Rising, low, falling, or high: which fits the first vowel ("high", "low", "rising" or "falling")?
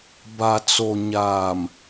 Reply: low